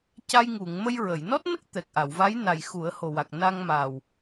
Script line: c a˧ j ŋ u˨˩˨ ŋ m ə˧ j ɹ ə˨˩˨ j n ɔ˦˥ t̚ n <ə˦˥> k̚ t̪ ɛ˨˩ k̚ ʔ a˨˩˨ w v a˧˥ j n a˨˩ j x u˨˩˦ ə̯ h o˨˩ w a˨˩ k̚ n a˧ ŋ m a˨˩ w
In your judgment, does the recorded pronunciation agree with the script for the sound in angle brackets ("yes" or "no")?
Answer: yes